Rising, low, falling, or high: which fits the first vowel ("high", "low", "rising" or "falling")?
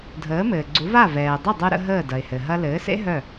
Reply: rising